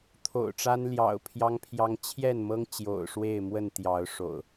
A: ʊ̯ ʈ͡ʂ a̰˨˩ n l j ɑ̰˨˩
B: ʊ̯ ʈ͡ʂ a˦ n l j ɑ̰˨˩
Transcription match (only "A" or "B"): B